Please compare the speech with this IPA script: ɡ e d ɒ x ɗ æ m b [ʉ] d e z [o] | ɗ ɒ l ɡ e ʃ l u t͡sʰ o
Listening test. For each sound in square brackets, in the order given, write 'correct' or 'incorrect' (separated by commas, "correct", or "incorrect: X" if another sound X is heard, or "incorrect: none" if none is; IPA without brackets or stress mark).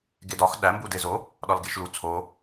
incorrect: u, correct